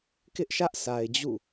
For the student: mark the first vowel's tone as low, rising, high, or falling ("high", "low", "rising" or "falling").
high